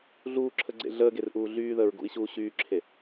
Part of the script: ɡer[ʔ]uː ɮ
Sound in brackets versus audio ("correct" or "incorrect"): correct